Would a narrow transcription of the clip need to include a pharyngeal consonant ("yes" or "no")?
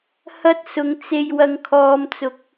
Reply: no